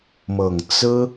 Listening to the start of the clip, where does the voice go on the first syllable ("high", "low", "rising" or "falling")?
low